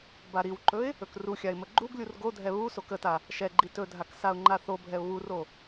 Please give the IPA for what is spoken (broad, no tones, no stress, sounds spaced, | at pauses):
b a ɾ i w ǃ ɵ ɪ̯ | ɵ k r u xʲ a ɪ̯ m ə ɡ͡ǃ u ɡ lʲ u r ɡ o dʱ ɛ β u s o k ə t a | ʃ ɛ ɡ͡ǃ i t ɵ dʱ a k s a ʊ̯ ŋ͡ǃ a θ o bʱ ɛ ʊ̯ β u r o